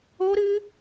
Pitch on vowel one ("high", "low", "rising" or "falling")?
high